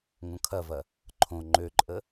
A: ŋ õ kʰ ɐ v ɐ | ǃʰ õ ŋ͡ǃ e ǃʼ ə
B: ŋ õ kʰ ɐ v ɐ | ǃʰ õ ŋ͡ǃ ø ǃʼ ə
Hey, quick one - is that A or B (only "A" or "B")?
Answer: B